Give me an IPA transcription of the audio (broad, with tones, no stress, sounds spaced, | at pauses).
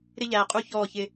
ɾ ɪ˦ ʎ æː˨ qʼ u˦˨ ç ɔː˦˨ ç ɪ˦